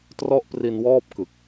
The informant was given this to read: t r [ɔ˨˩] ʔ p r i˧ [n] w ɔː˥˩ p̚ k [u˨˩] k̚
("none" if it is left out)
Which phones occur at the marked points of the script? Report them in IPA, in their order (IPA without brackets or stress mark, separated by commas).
ɔ˥˩, n, ɯ˨˩